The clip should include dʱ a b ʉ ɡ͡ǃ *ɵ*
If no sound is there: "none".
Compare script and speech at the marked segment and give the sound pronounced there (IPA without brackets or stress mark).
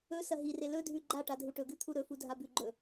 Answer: ɵ